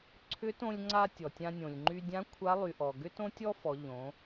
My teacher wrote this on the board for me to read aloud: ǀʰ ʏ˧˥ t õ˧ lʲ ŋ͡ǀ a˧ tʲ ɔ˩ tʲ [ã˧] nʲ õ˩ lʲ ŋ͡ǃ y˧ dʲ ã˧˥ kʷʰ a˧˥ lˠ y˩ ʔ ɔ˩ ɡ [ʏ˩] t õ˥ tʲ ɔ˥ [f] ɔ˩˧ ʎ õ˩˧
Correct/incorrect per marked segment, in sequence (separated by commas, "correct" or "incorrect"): correct, incorrect, correct